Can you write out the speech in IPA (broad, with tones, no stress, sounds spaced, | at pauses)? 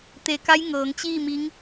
t̪ e˧˩ k a˧˥ j ŋ ɤː˩˧ ŋ t͡ɕ iː˥˨ m i˧˥ ŋ